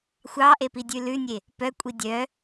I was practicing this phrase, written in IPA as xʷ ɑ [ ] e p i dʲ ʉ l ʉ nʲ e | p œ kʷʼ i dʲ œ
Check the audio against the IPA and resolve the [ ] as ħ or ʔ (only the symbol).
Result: ʔ